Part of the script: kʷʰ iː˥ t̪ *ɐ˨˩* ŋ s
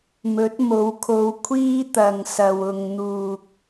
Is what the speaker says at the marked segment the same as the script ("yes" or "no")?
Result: no